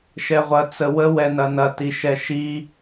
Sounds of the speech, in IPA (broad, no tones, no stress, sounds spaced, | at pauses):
ʃ ɛ ʁʷ ɐ t͡s ə w ə w ɛ n ɐ n ɐ t i ʃ ɛ ʃ i